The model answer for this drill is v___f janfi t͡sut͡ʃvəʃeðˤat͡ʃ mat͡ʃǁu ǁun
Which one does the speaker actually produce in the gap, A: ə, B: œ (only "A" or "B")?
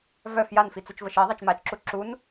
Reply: B